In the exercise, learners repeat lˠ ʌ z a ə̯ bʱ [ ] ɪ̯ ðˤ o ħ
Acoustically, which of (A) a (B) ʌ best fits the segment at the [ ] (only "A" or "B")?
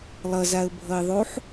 B